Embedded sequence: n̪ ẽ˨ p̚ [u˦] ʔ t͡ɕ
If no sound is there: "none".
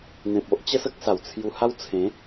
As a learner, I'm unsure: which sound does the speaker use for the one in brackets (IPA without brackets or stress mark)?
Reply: o˦